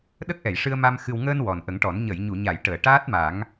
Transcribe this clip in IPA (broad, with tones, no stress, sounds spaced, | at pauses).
ɗ ə˦˥ k̚ ʔ ɛ˨˩˨ j ʂ ɨ˧ ə̯ m a˧ m x ɨ˨˩ w ŋ əː˧ n w ɔ˨˩ n ʔ ə˨˩˦ ŋ ʈ ɔ˨˩˦ n ɲ ə˨˩˨ j ɲ u˨˩˨ ɲ a˨˩˨ j ʈ əː˨˩˨ ʈ aː˦˥ t̚ m a˨˩˦ ŋ